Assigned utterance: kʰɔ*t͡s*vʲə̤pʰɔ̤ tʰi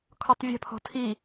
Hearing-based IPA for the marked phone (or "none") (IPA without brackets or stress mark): tˤ